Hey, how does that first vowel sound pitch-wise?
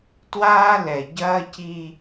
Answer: high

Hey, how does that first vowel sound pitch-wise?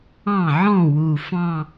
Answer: falling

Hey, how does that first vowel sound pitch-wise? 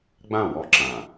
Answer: falling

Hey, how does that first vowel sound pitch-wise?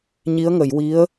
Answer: rising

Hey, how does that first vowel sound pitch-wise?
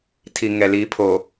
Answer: low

